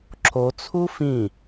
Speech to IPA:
ǁ o t͡sʰ u f ĩ

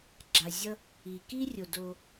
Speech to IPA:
ɡ͡ǁ a˨ zʲ ʌ˥ | i˩ k i˥ rʲ o˩ d o˨

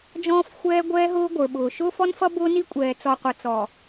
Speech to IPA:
d͡ʒ ɔ̃ː˦ f xʷ ɛː˦ ɡʷ ɛː˦ ɦ ʊː˦ ɡʷ ə˞˨ ɓ ʊː˨ ʃ ʊː˦ f ɔ˦ n f ʌ˦ b ʊː˦ n i˦ kʷʼ ɛː˨ t͡s ɔ˨ qʷ ʌ˨ t͡s ɔ˨

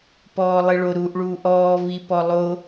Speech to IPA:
p ɔː lˠ i ɭ o ɾ uː ʔ ɭ uː ʔ ɔː v i p ɔ lˠ o

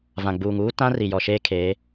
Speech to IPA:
v ã˨ ɡ͡b uː˨ ŋ uː˦ t ã˦ r i˨ j ɔ˨ ʃ eː˦ kʰ eː˨˦

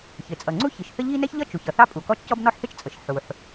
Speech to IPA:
ç ɪ˩ t͡sʼ ʌ˩ ŋ͡ǀ u˥ ç i˩ ʃ θ ə˥ ʎ i˥ n ɛ˥ ç ʎ ʌ˥ t͡ʃ u˩ ç ʌ˩ θ ɑ˥ pʼ u˩ k ɔ˥ t͡ʃ c ɔ˥ b n ɔ˥ ħ θ ɪ˥ t͡ʃ t͡sʼ ə˩ ʃ ħ u˩ ħ

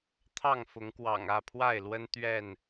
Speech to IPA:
t̪ʰ ɑ˥˨ ŋ f ʊ˨˦ ŋ k w ɑ̰˨˩ ŋ ä˥˨ pʰ w a˥˨ ɪ̯ l w ə˦ n t̪ ɥ ɛ˥˨ n

